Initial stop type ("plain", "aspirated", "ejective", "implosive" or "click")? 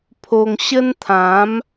aspirated